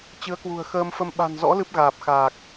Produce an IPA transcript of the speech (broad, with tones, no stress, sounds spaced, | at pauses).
t͡ɕ ɨ˨˦ ə̯ k w ṳ˨˩ ə̯ x əː˧ m f ə˧ m ɓ a̤˨˩ n z ɔ̰˧˥ l ɨ˦˥ p̚ ɣ aː˨˩ p̚ x aː˨˩ k̚